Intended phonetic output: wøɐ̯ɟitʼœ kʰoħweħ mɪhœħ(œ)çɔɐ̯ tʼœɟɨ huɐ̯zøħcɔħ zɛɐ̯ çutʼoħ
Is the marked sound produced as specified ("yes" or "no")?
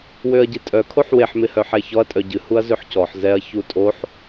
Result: no